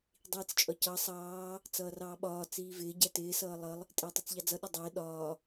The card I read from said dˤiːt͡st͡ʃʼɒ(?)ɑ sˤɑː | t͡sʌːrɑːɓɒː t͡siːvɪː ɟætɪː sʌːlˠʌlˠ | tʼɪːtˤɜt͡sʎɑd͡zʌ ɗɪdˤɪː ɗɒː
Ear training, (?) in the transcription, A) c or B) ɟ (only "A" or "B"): A